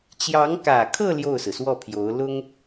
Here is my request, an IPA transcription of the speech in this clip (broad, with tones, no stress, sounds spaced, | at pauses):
t͡ɕ j ɑ˧˥ ŋ k ä˨˩ kʰ ɤ˥˧ l j o˥˩ ʊ̯ s ɹ̩˩ s w ɔ˥˩ pʰ j o˧˥ ʊ̯ l ʊ˥ ŋ